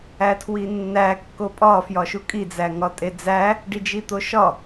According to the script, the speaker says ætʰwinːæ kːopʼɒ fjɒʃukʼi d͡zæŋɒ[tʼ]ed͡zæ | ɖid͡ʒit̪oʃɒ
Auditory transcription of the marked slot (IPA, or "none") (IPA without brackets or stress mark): tʼ